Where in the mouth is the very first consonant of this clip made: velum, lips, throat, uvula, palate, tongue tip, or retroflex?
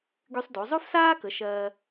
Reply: velum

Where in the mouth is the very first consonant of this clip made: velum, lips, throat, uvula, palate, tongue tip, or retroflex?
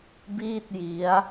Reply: lips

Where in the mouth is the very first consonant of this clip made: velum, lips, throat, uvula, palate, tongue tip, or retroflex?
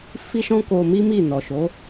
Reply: lips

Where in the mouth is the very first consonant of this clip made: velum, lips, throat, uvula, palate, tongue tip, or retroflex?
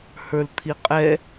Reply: throat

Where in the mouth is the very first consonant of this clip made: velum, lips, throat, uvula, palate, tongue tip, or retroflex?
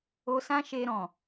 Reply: tongue tip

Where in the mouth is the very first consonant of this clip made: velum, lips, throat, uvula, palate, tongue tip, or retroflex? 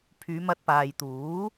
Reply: lips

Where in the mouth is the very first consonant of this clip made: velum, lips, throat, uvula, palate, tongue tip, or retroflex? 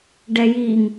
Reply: retroflex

